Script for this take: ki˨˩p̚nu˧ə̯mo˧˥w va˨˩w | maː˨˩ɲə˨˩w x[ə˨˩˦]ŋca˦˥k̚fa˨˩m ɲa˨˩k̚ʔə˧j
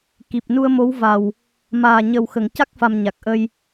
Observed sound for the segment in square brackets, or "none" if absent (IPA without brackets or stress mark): ə˨˩˨